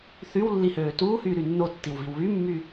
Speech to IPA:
θ y w lː i h øː t uː h yː ɾ y nː o tː i w v i w β y mː y

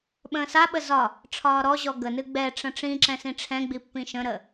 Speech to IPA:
ɓ ə̃ː s a ɓ ə z ɒ | ʈ͡ʂʰ ɒː ɾ ɔ ʑ ɔ ɡ ə n ɨ ɡ͡b ɛ ʈ͡ʂ ə̃ ʈ͡ʂ ĩ ǁ ɛ̃ s ĩ ʈ͡ʂʰ ɛ̃ ɡ͡b i pː ĩ ʃ ə̃ ɾ ə

